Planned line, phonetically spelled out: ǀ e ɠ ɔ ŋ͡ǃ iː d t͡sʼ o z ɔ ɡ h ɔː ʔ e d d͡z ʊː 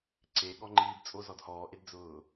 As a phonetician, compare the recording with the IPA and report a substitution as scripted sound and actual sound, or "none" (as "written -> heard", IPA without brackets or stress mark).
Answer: ɡ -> d